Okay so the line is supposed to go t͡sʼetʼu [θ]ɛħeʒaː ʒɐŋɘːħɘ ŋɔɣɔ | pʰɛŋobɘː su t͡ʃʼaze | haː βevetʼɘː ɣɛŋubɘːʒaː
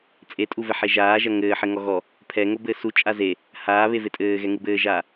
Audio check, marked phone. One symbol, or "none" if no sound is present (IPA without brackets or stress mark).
v